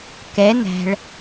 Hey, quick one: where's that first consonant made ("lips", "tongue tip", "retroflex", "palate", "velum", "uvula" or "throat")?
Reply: velum